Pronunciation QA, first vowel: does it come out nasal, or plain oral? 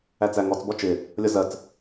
oral